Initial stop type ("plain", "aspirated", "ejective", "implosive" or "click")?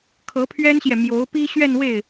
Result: aspirated